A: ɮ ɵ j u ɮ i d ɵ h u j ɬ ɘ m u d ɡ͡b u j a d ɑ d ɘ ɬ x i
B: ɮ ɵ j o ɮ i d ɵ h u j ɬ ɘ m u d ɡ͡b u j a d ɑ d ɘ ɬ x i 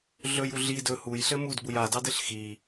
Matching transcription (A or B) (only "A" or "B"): A